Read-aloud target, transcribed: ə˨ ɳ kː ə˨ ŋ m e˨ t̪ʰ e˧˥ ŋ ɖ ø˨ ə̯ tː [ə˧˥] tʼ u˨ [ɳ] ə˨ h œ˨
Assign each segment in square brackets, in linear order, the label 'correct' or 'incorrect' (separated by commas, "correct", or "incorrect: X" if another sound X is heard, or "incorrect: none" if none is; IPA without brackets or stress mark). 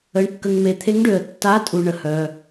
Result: incorrect: a˧˥, correct